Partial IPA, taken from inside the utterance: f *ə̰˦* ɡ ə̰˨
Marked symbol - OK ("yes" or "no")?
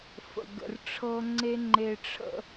no